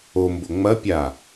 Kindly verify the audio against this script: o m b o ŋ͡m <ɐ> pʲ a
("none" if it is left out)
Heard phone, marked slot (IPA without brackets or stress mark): ɐ